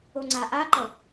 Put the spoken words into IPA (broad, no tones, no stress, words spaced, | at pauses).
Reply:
oŋ͡ǀaʔaǃʌ